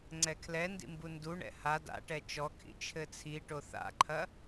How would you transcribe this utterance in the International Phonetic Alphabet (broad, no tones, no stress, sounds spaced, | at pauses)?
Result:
ŋ͡ǀ ɛ kʰ l ɛ n d ḭ m b u n d u ɳ ɛ̰ h a d a̰ ʈ ɛ t͡ʃ ɔ kʰ ḭ t͡ʃʰ ɘ t͡sʰ i ʈ o θ a̰ ǃʰ ɐ